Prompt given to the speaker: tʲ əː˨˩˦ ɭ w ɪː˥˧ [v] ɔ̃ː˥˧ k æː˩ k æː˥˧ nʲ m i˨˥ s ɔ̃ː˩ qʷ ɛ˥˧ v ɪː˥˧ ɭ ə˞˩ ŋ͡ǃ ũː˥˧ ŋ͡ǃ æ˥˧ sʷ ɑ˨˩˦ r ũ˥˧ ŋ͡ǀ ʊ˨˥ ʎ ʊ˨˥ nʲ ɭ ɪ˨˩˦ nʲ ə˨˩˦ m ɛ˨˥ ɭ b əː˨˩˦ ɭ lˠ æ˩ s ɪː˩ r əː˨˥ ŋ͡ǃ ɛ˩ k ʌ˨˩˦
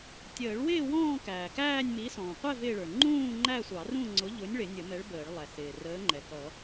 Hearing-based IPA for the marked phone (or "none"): w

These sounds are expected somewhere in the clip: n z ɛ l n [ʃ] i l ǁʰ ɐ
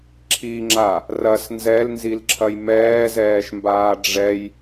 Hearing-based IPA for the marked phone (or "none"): z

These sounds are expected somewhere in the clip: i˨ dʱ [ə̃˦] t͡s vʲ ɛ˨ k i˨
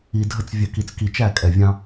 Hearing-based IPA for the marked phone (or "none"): ə˦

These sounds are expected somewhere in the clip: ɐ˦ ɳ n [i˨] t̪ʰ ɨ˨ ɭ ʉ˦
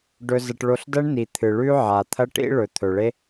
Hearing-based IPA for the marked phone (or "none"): i˨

